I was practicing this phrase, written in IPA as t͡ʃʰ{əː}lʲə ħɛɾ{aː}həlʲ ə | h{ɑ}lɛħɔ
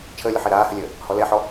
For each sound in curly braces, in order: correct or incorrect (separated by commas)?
correct, correct, incorrect